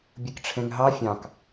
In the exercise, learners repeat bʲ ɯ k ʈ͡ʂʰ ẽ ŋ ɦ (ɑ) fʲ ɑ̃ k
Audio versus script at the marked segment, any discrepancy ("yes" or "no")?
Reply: no